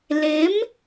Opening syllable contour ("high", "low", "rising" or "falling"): rising